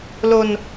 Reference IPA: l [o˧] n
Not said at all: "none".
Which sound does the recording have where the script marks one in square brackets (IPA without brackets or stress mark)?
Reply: o˧